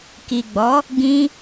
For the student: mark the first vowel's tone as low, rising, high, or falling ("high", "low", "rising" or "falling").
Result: low